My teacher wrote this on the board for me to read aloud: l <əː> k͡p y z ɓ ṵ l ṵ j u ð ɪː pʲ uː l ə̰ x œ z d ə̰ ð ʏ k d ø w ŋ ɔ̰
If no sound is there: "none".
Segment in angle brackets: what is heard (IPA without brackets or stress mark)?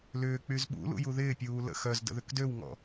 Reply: ʏː